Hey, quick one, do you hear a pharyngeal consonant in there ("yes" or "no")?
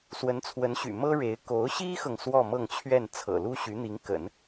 no